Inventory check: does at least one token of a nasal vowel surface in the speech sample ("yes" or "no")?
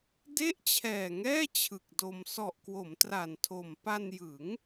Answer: no